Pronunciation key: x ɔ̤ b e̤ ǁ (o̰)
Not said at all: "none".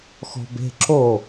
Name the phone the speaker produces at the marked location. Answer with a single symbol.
o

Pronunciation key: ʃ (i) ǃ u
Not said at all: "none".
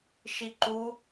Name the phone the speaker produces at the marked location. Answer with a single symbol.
i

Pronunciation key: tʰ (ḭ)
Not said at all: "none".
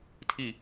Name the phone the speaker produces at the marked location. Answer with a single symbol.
i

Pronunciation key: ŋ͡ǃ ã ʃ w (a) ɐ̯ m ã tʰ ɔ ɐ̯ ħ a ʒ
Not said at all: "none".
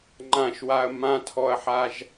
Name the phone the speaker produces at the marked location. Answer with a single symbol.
a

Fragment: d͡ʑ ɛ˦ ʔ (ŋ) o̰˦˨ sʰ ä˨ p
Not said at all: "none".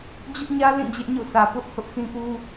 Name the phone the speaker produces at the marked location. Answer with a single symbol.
ɲ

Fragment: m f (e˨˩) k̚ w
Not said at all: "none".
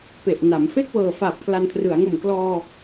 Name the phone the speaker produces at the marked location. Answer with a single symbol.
e˥˩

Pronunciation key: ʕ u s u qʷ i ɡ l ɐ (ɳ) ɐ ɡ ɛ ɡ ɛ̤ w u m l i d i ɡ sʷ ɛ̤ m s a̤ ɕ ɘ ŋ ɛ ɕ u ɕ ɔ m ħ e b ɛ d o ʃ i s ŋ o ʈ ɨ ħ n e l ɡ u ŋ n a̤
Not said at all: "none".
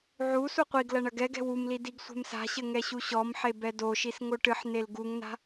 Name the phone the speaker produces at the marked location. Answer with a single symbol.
ɳ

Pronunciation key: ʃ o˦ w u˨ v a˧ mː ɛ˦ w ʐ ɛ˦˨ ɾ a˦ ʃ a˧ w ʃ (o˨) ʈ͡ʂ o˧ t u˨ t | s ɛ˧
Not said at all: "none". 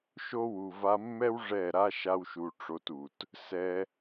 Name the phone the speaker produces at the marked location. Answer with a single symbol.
u˨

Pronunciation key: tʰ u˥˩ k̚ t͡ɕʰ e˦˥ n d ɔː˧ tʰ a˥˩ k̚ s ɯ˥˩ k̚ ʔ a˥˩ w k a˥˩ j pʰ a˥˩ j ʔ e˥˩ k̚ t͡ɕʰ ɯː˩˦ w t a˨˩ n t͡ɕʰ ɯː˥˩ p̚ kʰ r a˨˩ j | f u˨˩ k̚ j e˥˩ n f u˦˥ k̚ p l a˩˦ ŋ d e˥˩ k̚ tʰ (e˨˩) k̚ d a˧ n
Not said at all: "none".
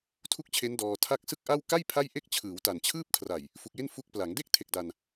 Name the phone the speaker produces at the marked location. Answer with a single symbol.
e˨˩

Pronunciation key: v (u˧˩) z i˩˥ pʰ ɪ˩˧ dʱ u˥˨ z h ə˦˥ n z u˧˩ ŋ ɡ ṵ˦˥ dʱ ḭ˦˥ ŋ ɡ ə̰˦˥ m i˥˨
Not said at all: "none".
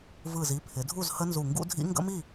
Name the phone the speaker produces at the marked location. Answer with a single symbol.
ɯ˧˩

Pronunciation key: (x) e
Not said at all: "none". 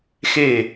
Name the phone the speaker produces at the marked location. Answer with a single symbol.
x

